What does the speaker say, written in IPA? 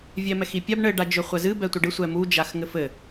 vʲɛmɛxipʲab ɳɘ ɖad͡ʒøχʷɛzɨ bɛtʷɘɖɨ sʷɛmu d͡ʒaxŋɘfɘ

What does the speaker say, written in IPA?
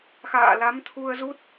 xa̰ː˧˨la˨˦mt̪ʰu˧ə̯zu˦˥t̚

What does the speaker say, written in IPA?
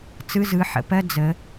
t͡sɯ˧˥˧zɯ˨˦ħə̰˨˦pɜ˧˥˧ d͡zə˨˦

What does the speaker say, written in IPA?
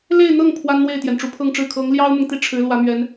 le˥˧ɪ̯n̪ɤ˥˩ŋ pʰwa˥nn̪we˥˩ɪ̯t̪jɛ˩n ʈ͡ʂu˧˥pʰɤ˥˧ŋʈ͡ʂɻ̩˥˩ kʰɤ˧˥ŋljɑ˥ʊ̯mʊ˨ŋ t̪i˥˩ʈ͡ʂʰɻ̩˧˥ lwä˧˥mɥɛ˧˥n

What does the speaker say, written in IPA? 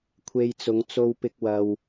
kʷʰe˧jt͡sʊ˨˧ŋ t͡so˧wpɪ˧k̚ wɐ˧w

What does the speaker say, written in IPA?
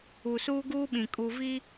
u˨suː˦ɡuː˦ɓĩ˨ kʼu˨vi˦

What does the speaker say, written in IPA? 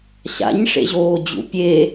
ɕa̰ɲʂḛʑoːd͡ʑṵ pʲe

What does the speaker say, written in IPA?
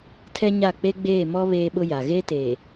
tʰɛ˦ɲa˦˨ k͡pe˦ɡ͡beː˦˨mɔ˦ βeː˦ɓʊ˦ja˨ ɣe˦te˨

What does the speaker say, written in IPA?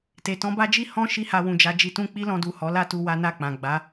te˨tɔ̃˧ba˦d͡ʒi˦ hɔ̃˦ ʃi˦ha˧wũ˨d͡ʒa˧ d͡ʒi˧tũ˦ k͡pi˦lɔ̃˧du˨ hɔ˨˦la˦tu˧ wa˦na˦˨k͡pã˨ ɡ͡ba˨˦

